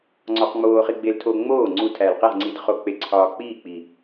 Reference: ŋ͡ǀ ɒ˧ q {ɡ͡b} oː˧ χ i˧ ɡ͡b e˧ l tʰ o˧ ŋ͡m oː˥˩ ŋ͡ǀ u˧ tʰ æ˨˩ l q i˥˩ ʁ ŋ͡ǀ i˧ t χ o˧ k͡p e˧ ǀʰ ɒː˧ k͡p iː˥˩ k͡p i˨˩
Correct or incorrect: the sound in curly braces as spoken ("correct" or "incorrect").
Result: incorrect